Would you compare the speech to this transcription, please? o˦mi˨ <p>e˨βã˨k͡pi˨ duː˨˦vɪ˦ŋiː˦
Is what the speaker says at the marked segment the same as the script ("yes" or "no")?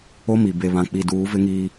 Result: no